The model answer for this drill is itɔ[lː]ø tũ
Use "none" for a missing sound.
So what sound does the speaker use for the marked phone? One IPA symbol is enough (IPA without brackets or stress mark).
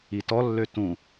lː